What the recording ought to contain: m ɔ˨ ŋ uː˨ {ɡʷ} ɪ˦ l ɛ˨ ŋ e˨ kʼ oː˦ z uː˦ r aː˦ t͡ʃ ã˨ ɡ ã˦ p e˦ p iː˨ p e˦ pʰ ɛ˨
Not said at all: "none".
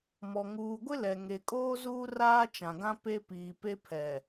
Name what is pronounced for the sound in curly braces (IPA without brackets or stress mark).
ɡʷ